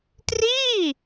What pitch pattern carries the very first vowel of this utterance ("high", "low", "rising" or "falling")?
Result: falling